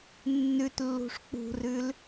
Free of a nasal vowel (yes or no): yes